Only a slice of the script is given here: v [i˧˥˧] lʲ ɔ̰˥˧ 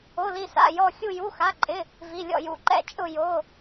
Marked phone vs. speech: correct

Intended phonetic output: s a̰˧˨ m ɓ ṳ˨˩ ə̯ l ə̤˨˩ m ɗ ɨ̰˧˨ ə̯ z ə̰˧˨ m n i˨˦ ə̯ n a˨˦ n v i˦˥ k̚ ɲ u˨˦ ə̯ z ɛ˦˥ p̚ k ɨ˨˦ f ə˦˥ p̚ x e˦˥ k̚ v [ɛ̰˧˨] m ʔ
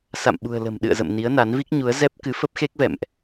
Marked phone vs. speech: correct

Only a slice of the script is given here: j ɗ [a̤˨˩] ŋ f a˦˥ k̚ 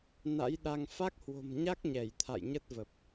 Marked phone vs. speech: incorrect: a˧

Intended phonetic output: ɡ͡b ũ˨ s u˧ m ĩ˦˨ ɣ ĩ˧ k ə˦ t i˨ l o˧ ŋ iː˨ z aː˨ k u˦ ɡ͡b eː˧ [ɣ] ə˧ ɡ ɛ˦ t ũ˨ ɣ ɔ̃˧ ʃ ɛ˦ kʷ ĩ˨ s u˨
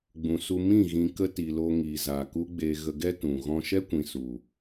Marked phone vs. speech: correct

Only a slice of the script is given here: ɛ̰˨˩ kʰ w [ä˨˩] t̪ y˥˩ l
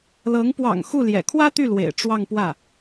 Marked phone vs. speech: incorrect: ä˥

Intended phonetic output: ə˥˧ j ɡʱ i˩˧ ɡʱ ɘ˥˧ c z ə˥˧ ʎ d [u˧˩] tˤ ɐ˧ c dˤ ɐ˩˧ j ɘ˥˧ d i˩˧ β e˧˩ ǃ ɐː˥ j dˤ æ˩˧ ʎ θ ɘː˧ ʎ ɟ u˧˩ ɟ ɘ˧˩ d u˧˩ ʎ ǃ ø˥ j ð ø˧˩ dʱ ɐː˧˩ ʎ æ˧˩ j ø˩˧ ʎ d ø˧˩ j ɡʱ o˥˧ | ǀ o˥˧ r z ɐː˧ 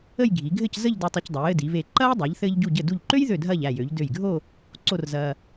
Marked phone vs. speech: incorrect: u˧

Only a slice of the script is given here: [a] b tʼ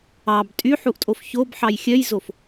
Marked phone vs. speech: incorrect: ɑ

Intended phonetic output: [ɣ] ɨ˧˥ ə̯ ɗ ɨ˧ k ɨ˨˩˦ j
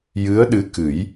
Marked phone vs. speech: incorrect: j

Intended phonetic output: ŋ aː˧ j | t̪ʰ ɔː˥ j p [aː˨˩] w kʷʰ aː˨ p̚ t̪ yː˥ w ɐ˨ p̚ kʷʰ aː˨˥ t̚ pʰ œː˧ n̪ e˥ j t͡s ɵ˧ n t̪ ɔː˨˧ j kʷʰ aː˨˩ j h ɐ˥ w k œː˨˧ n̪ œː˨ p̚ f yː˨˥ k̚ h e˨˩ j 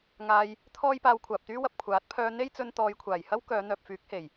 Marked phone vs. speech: incorrect: aː˧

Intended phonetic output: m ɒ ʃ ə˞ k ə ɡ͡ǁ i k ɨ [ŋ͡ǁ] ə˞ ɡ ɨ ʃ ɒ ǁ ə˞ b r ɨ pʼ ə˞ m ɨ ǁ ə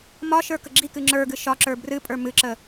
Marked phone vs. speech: correct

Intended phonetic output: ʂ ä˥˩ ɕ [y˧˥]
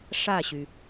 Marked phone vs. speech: incorrect: y˩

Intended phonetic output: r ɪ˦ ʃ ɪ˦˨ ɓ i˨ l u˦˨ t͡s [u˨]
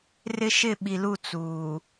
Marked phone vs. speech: incorrect: uː˨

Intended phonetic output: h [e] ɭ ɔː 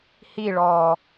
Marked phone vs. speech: incorrect: i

